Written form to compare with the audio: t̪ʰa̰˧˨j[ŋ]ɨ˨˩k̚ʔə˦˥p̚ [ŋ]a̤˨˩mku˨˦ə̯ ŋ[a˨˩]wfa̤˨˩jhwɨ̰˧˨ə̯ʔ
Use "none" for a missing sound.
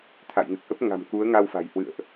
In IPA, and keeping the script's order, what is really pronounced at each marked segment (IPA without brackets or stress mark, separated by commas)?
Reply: ŋ, ŋ, a˧